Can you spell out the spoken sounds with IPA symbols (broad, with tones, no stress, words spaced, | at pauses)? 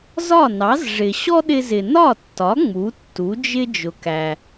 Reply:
zɒ˥˩nɑ˩˥z ʐɪ˩ ɕɔ˥ɗɪ˧zɪ˩ nɒ˥˩tːɒ˩˥ ŋ͡mu˩˥tːu˩˥d͡ʒɪ˥ d͡ʒʊ˩kæ˩